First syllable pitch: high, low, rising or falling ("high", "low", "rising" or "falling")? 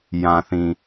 low